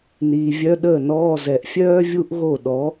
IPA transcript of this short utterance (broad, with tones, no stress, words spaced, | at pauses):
niː˨vʲœ˧˥˧ɗəː˥˩nɔː˧˥˧ zɛ˨ʔfʲœː˥ vʲu˥ʔɣo˥˩ ɗɔ˨˥